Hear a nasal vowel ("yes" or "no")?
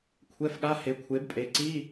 no